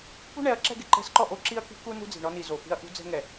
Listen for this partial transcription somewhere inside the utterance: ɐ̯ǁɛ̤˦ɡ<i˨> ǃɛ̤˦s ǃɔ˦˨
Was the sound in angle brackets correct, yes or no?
no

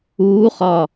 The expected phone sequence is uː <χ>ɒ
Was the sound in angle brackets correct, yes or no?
yes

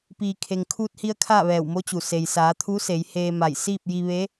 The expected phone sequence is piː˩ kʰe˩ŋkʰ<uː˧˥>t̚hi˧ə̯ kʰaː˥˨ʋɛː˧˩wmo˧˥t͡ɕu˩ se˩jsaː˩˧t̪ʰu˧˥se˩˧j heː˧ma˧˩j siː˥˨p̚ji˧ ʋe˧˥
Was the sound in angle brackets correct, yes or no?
no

